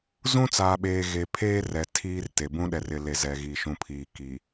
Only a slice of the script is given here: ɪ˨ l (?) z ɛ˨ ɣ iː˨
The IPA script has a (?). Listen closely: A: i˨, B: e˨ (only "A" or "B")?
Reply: B